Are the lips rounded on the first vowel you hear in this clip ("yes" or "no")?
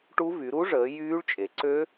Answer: yes